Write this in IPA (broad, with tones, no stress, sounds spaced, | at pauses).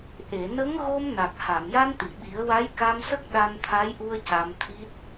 ʔ e˨˩˨ n ə˧˥ ŋ ɣ o˧ m n a˨˩ k̚ h a˨˩˨ m j a˧ n t̪ i˨˩˨ ɓ i˨˩˦ ə̯ w a˧˥ j k a˧ m s ə˦˥ k̚ ɗ a˧ n t̪ʰ a˧˥ j ʔ u˧ ə̯ c a˧ m t̪ʰ i˦˥ t̚